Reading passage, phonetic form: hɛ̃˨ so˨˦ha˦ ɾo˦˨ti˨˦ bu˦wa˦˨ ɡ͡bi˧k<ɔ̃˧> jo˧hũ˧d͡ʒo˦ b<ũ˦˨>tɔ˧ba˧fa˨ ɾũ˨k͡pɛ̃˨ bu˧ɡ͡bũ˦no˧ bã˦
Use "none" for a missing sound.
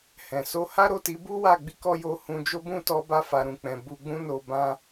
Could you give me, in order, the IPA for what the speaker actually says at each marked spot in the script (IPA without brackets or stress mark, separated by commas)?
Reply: ɔ˧, ũ˦˨